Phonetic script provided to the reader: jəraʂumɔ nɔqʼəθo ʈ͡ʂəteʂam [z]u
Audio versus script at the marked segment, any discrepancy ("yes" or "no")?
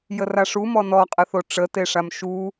yes